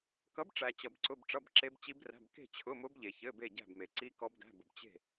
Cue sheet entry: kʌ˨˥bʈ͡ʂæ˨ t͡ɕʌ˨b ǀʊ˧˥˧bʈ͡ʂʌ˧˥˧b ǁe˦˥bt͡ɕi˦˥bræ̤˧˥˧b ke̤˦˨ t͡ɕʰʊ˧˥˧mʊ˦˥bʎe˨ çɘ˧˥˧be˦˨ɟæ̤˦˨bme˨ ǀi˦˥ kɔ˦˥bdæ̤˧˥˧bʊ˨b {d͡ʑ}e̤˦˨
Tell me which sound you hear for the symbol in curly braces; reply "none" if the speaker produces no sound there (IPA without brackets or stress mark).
t͡ɕ